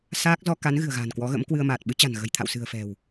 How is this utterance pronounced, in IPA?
saː˦˥k̚ zɔ˧ ka˨˦n ɣɨ̤˨˩ə̯ɣa̤ː˨˩nkwɔ˨˦ɣə̰˧˥m kwɨ˧ə̯maː˨˩t̚ ɓɨ˨˦t͡ɕa̤˨˩n ɣə̤˨˩jt̪ʰa̰˧˨wsɨ̤˨˩ə̯fɛ̤˨˩w

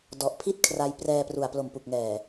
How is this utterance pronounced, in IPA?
dɔ˨˩ʔpʰi˥˩t̚ kʰra˧j prɛː˧pru˨˩a̯ plo˨˩mpu˨˩k̚ŋɛː˨˩

